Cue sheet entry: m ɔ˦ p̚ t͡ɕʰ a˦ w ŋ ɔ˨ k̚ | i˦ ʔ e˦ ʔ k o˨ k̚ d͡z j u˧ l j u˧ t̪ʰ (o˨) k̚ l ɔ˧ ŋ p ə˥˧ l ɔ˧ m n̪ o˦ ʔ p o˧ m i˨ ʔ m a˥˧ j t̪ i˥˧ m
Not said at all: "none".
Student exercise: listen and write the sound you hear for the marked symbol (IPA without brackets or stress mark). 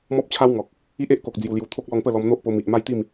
o˦